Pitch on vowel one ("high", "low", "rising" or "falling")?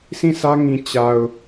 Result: falling